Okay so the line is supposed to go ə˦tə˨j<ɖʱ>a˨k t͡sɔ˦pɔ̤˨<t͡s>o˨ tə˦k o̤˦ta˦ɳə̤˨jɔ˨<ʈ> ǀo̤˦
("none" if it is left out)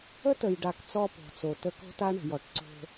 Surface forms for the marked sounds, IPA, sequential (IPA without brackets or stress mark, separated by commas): ɖ, t͡s, ʈ